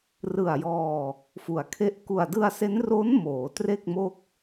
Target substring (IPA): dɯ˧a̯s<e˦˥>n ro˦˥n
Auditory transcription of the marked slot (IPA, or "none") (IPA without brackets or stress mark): e˦˥